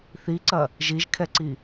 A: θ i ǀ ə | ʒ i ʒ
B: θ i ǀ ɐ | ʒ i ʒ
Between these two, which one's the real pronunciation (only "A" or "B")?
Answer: B